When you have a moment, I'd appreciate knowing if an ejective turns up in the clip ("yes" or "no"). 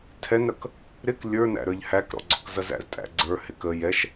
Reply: yes